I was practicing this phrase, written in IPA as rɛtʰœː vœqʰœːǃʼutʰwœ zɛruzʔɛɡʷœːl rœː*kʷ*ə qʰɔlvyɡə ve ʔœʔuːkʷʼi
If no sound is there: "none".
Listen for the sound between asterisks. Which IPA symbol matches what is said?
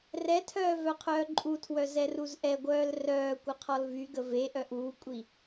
kʷ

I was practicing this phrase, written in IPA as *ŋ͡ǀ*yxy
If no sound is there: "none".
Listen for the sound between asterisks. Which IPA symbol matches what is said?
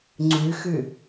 ŋ͡ǀ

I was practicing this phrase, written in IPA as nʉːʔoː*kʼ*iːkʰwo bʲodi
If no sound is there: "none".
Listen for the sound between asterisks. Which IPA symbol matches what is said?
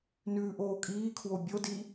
kʼ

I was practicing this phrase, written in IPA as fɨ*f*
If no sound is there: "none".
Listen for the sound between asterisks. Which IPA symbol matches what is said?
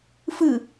none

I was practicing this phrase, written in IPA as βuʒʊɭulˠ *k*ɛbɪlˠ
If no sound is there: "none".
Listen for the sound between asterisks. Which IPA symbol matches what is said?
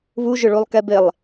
k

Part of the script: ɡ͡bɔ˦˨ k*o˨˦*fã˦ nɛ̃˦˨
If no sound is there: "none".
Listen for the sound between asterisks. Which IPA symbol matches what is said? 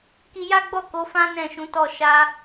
o˨˦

